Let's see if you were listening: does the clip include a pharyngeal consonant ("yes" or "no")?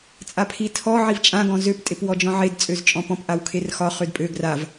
yes